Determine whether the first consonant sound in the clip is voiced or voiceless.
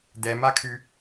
voiced